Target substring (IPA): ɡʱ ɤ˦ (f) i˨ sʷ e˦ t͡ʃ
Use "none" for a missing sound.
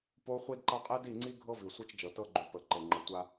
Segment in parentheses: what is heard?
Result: v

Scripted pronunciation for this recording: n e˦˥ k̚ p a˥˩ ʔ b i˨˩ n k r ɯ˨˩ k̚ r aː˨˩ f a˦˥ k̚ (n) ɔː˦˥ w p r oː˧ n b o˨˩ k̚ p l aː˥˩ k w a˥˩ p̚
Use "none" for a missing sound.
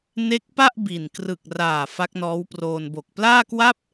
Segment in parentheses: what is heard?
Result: n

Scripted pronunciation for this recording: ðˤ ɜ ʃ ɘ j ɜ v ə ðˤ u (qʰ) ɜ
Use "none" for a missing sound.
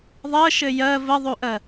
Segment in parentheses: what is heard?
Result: ʔ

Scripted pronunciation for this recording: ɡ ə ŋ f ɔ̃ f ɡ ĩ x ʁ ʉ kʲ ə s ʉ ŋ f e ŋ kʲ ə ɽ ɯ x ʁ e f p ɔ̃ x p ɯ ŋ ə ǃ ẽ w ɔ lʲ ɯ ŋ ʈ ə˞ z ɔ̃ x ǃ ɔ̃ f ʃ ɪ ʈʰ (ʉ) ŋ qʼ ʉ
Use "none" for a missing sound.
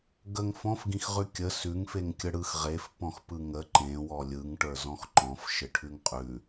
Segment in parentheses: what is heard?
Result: ʉ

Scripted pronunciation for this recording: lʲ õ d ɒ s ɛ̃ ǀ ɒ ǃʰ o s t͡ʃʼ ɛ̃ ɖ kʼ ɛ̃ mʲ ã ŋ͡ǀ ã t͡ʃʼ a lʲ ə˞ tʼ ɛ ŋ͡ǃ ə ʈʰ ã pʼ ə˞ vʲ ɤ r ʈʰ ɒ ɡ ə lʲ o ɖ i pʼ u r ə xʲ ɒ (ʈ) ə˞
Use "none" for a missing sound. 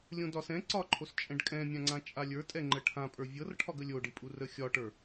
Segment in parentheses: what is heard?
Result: ʈ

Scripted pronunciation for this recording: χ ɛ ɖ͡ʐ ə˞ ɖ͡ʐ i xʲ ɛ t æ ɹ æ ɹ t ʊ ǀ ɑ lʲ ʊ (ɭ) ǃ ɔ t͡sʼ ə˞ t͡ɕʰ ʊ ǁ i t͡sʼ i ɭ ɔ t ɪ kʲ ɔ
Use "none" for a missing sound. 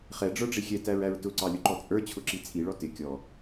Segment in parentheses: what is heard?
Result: none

